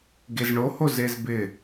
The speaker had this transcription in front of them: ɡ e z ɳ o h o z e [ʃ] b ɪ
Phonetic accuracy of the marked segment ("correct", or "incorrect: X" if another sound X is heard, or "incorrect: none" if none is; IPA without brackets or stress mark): incorrect: z